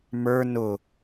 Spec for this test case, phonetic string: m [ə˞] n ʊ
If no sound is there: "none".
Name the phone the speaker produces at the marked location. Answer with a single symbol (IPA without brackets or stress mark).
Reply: ə˞